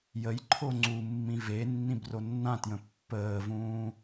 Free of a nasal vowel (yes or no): no